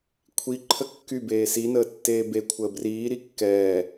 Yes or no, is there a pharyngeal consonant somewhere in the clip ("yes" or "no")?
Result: no